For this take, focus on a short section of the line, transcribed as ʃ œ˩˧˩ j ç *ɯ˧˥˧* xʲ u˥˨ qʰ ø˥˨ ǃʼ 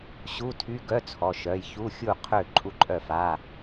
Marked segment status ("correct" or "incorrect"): incorrect